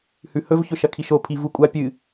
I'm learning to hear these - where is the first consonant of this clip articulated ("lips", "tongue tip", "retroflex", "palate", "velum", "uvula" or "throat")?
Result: throat